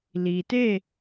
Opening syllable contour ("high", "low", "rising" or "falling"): low